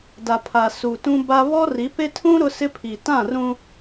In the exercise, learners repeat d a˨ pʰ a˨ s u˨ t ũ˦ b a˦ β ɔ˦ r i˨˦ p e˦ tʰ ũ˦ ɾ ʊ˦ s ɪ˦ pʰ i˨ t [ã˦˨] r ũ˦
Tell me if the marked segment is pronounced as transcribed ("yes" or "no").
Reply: yes